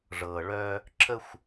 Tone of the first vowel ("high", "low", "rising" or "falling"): low